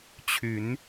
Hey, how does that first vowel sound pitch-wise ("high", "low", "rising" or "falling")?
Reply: rising